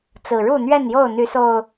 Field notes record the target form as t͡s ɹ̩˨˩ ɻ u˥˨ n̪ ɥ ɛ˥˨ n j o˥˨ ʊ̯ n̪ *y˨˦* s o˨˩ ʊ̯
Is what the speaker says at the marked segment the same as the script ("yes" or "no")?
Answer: yes